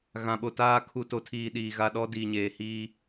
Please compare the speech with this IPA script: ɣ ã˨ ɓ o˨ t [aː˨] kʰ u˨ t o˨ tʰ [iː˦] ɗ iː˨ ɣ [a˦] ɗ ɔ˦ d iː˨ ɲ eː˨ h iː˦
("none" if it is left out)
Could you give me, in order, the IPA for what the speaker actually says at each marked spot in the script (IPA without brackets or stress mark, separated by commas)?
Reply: aː˦, iː˨, a˦